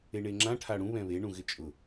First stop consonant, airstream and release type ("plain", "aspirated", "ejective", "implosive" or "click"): click